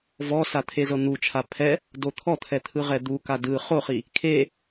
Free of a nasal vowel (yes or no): yes